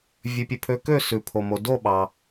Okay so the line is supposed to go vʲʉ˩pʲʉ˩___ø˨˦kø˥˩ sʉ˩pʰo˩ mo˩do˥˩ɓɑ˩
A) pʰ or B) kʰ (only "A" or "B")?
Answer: A